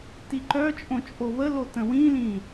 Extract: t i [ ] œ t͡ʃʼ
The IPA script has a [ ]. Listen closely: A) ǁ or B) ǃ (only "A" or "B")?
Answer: B